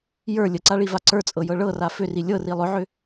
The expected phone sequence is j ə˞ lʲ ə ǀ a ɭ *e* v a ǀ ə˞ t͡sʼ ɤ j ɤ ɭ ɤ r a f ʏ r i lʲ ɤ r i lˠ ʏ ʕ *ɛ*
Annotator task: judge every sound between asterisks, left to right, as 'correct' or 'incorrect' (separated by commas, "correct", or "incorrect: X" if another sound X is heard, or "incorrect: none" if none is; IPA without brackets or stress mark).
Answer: incorrect: i, incorrect: ʏ